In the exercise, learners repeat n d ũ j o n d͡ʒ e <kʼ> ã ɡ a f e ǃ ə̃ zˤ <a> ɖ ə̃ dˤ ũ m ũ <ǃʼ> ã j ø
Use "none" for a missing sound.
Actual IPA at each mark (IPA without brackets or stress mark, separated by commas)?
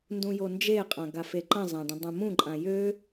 qʼ, ã, ǃʼ